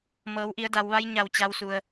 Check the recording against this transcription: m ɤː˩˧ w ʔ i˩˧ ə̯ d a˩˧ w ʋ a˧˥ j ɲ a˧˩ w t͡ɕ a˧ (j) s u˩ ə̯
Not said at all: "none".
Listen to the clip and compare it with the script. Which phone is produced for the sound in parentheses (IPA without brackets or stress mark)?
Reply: w